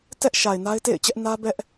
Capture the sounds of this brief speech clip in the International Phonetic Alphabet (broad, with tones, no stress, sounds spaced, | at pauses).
t ɛ˦ ʔ ʃ a˨ ɪ̯ n a˦ ɪ̯ t ḛ˦˨ ɪ̯ t͡ɕ ɛ˦ ʔ n ä˦ b ɛ˦ ʔ